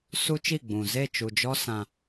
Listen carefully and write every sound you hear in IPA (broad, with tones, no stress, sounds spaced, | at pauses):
s u˦ t͡ʃ i˦˨ ɡ͡b ũ˨ z e˦˨ t͡ʃ u˨ d͡ʒ ɔ˦ s ã˦